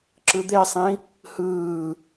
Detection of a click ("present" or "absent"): present